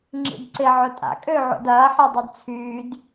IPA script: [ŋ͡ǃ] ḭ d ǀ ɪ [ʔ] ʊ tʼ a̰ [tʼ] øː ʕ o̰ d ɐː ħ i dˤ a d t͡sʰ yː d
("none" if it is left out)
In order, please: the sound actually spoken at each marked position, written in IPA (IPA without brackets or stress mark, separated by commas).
ŋ͡ǁ, ʕ, kʼ